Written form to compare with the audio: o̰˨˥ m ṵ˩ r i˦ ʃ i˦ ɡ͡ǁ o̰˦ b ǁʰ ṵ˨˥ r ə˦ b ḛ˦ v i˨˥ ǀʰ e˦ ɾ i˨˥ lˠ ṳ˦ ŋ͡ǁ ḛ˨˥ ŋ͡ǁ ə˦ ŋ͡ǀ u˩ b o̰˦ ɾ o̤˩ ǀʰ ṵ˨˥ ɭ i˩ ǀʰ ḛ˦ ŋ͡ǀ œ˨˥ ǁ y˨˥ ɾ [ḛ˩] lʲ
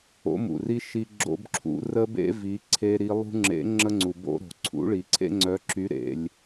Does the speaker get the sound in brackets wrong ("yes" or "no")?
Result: no